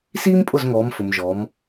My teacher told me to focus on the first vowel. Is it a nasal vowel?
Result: no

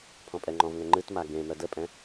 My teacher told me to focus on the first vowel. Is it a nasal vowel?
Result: yes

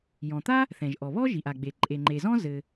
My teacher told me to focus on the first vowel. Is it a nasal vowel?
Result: yes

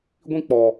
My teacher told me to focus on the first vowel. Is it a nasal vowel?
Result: yes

